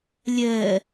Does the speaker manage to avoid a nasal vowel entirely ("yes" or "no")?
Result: yes